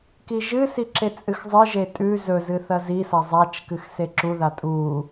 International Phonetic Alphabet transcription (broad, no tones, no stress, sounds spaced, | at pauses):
k i ʒ ɨ s i ǁ e t͡sʼ ɨ x zˤ ɨ ʒ e tʼ ʉ z ɵ z ɨ θ ɐ z i s ɐ zˤ a t͡ʃ k ɨ x s e ǁ u ð a tʼ u